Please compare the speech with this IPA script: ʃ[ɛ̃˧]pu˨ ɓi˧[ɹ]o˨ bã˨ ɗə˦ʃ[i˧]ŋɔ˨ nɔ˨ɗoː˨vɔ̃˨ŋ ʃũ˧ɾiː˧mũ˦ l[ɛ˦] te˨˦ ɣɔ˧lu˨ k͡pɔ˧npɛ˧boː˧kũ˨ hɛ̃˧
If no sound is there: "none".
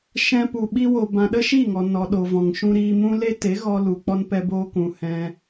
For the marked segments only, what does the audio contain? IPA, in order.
ɛ̃˧, w, i˦˨, e˦

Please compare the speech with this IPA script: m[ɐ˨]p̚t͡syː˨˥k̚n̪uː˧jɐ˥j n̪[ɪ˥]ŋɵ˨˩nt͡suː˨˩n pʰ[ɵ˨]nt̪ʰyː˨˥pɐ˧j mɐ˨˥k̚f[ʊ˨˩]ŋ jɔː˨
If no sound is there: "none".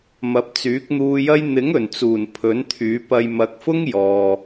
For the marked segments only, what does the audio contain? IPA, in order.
ɐ˨˥, ɪ˨˥, ɵ˨˥, ʊ˥

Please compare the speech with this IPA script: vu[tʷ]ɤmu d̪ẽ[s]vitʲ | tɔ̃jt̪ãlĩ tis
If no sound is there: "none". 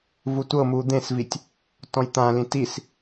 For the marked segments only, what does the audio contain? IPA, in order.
tʷ, s

